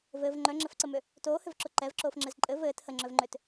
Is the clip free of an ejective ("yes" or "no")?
no